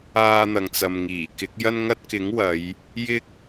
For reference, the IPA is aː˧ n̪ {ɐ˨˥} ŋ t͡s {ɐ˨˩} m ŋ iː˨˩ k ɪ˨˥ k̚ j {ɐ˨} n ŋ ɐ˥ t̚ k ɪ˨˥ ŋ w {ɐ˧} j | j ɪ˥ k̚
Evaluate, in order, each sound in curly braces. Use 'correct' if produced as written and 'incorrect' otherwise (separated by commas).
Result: incorrect, incorrect, incorrect, incorrect